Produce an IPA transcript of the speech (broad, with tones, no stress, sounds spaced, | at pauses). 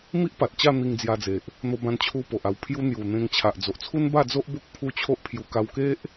m i˦ ʔ p a˨ t̚ t͡ɕ a˥˧ n̪ i˧ ŋ d͡z j a˧ d͡z e˨ ʔ | n̪ o˧ b ã˧ n t͡ɕʰ u˧ p o˨ ʔ a˧ w pʰ j u˦ n̪ j u˨˩ n̪ ẽ˧ ŋ t͡ɕʰ a˨ ʔ d͡z o˨ ʔ t͡sʰ u˦ n b a˥˧ d͡z o˦ ʔ b o˦ k̚ pʰ u˦ t͡ɕʰ o˦ ʔ pʰ j u˧ k a˧ w k e˦ ʔ